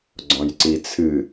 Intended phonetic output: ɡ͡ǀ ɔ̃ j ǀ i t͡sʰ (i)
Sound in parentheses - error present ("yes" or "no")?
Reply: yes